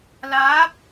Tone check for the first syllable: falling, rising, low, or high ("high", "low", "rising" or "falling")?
rising